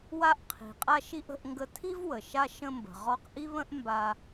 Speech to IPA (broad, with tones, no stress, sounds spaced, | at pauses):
w a˧ ʔ qʰ i̤˩ qʼ a˧ ʃ i˧ ʔ ə̤˧ ʔ ŋ ɡ ə˧ tʰ i˥ v w ə˩ ʃ a˧ ʃ ə̃˧ m b ə̤˩ ʁ ɔ˧ q ʔ i˥ β ə̃˥ ʔ m b a˧